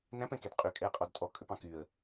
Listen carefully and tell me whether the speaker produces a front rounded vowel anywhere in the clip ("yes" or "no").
yes